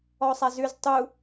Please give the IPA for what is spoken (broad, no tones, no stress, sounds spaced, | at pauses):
ɔ sˤ a z ʉ z tˤ u